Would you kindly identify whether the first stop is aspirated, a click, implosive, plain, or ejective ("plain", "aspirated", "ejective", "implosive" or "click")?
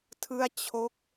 aspirated